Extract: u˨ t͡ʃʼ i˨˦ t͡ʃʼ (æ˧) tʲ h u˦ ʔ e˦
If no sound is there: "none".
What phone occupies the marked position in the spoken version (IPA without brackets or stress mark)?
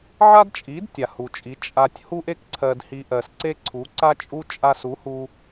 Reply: a˧